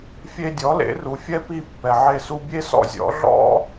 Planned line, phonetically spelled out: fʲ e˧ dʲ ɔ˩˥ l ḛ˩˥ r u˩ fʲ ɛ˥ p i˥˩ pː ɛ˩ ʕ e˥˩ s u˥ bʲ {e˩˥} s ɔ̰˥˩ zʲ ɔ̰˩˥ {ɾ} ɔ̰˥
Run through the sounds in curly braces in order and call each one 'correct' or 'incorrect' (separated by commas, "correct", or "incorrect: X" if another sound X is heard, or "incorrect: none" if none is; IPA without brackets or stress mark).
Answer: incorrect: e˥, incorrect: ɮ